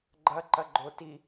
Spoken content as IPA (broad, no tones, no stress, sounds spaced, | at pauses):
ɡ͡ǃ ɐ ǃ ɐ ɡ͡ǃ o t i